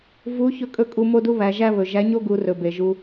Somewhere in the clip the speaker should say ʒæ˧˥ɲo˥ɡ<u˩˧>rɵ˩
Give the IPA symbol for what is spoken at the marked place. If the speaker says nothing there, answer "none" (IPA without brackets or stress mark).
u˩˧